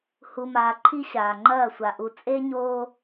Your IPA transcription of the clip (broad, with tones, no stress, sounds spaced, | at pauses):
h u˨ m aː˨ ǃʰ i˦ ɕ aː˨ ŋ͡ǃ ɐː˦˨ sʷ a˨ ʔ u˨ t͡sʼ e˦ ɲ oː˦